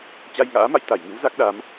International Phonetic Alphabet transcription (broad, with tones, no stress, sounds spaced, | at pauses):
t͡ɕ a˧ j ŋ a̰ː˧˥ m a̰˧˨ j t̪ a˧˩ j ŋ ɨ˨˦ w z a˦˥ k̚ ɗ a˨˦ m